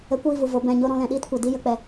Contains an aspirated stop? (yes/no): no